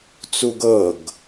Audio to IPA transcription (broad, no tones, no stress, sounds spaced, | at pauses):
t͡s u ɡ ɤ ɡ